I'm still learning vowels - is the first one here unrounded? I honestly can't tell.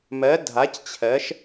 yes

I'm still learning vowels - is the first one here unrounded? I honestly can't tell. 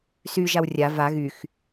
no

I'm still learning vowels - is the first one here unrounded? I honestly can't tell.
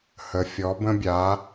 yes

